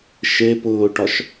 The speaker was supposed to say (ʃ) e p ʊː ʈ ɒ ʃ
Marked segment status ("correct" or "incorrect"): correct